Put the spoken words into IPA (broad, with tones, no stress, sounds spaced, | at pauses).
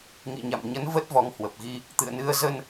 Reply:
ŋ ḭ˧˨ ɲ a̰˧˨ m ɲ ə˨˦ n v ə˦˥ t̚ v ɔ˨˦ ŋ h w ə˨˩ p̚ ɣ i˧ | t̪ ɨ̰˧˨ ə̯ n ɨ˧ ə̯ z ə˧ n